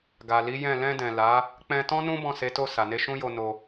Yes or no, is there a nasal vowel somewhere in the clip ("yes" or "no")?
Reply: yes